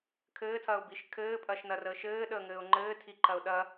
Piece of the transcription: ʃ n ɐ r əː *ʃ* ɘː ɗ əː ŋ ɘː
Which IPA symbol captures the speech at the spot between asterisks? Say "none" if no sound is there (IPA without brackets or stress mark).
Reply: ʃ